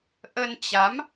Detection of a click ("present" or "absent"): absent